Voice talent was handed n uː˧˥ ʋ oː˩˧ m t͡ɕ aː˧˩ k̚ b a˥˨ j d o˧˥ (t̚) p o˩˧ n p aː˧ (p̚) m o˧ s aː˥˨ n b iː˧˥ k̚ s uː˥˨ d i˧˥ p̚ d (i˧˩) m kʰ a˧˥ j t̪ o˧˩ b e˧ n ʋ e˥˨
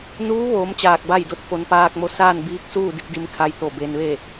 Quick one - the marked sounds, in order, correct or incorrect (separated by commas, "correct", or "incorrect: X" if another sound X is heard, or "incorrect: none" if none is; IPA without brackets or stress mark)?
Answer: correct, incorrect: k̚, incorrect: i˧˥